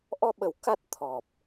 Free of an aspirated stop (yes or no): no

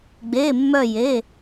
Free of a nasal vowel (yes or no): yes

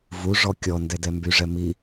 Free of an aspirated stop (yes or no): yes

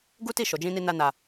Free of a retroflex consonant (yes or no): yes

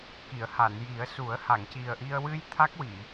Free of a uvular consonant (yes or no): yes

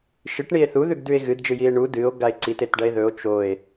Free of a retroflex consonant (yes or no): no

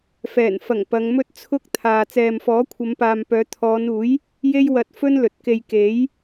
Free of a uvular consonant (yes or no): yes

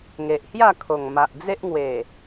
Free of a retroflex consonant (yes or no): yes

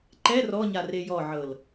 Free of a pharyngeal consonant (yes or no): no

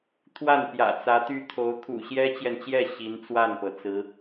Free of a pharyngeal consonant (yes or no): yes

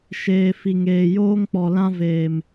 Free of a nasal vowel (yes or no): no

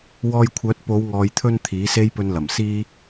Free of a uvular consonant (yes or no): yes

